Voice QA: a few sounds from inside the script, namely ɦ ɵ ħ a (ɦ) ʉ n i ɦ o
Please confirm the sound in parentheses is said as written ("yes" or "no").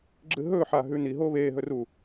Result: yes